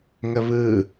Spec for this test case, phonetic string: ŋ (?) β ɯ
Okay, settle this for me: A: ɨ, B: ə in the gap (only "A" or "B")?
B